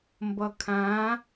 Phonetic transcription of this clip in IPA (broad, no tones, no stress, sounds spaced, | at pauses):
m b ʌ kʰ ã